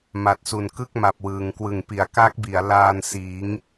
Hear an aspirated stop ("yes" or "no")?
no